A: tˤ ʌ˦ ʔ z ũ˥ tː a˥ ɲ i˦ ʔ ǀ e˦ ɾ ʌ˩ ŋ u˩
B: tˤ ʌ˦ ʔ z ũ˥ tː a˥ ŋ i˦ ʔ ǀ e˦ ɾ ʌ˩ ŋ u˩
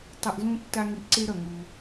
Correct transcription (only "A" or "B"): B